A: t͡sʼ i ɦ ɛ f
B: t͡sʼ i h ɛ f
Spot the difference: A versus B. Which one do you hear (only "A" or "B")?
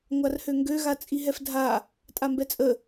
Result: A